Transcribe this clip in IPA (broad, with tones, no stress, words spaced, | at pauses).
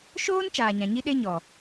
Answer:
ʃoː˦n t͡ʃaː˨ɲã˨ɲi˦ɗe˦ ɲɔ˨